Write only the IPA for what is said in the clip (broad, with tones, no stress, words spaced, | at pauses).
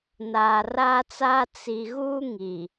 naː˨raː˦t͡saː˦ t͡si˨ ɣuː˦ŋi˨